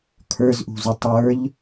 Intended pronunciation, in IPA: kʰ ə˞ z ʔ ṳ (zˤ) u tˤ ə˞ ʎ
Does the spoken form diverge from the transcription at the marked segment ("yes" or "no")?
yes